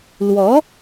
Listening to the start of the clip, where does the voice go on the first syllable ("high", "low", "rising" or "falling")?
rising